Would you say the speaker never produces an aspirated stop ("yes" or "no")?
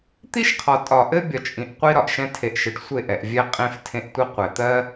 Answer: no